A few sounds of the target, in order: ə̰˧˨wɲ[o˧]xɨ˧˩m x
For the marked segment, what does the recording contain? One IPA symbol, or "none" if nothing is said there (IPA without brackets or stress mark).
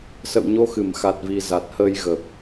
o˧